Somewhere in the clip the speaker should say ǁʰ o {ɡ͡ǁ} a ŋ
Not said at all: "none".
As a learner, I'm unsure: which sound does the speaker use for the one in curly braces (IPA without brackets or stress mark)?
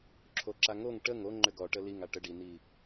ǁ